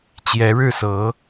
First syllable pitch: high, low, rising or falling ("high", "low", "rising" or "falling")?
rising